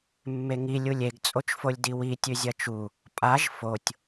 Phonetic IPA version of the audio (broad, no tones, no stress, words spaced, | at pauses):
mːeŋi lʲulʲeɡ t͡sʼot͡ʃfolʲdiwi tʲʉzʲɐt͡ʃu | pʼaʒ fotʲ